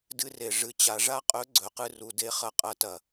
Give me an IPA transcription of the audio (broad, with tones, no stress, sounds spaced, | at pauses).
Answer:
d ɨ˧ r e˩ ʐ ɨ˩˧ t͡ɕ a˩˧ ʐ a˥ qʼ ɵ˧˥ ɡ͡ǀ ɵ˩˧ q ɨ˧ r u˩˧ d e˧ χ ɐ˧˥ qʼ ɐ˧˥ t ɐ˩